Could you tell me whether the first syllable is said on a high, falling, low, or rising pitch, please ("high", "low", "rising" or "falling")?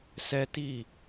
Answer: high